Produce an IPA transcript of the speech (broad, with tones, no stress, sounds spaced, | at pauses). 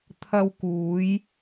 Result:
t̪ʰ ɐ˧ w k uː˨˧ j